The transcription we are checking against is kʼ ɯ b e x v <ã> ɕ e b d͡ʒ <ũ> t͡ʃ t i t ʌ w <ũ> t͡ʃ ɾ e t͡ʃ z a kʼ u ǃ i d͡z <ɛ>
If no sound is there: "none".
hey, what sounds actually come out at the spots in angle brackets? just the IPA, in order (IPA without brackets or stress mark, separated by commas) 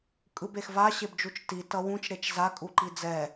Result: a, u, ũ, ɛ